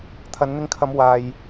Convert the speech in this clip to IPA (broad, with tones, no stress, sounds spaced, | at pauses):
t̪ʰ ɐ˨˧ n n̪ ɪ˧ ŋ kʰ ɐ˨˧ m w aː˨ j